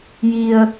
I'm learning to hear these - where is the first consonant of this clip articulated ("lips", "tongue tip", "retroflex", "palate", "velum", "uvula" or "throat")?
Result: palate